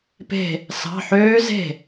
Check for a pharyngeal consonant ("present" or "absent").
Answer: present